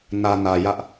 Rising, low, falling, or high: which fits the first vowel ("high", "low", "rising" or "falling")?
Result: low